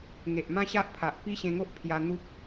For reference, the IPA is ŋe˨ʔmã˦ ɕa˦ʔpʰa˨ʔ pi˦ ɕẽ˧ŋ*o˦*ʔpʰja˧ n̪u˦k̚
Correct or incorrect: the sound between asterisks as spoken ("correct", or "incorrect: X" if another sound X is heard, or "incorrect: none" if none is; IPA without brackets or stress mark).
correct